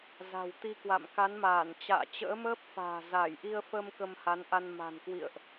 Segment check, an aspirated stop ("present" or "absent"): absent